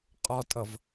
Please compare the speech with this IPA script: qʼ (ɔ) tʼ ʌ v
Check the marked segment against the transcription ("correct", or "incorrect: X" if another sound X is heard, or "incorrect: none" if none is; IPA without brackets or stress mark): correct